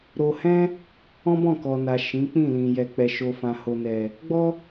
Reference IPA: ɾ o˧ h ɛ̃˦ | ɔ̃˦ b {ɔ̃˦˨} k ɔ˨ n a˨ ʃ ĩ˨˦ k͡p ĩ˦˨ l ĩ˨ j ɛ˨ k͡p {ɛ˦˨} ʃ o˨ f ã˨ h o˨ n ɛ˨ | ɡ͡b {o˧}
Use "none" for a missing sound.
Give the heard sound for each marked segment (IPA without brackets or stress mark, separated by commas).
ɔ̃˦˨, ɛ˨, ɔ˧